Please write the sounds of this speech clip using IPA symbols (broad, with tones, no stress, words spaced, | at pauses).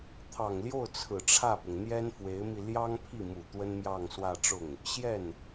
t̪ʰɑ˨˩ŋljo˥˩ʊ̯ t͡sʰɹ̩˨˩ʈ͡ʂʰä˥˩pʊ˩ŋ n̪jɛ˥nfwe˧˥ɪ̯mi˧ ljɑ˥ŋpʰi˥˩mu˨˩ t̪wə˥nmjɑ˥˧ŋswä˥˧ ʈ͡ʂʊ˥˩ŋ | ɕjɛ˥˩n